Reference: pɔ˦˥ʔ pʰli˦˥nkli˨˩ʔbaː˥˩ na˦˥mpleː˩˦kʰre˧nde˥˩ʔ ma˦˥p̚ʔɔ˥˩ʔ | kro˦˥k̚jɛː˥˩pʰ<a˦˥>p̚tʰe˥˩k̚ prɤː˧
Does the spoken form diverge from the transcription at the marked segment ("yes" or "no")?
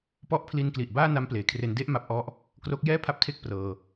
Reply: no